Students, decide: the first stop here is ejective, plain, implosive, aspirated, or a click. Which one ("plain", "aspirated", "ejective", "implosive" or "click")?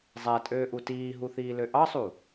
ejective